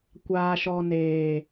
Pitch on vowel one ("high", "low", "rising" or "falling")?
low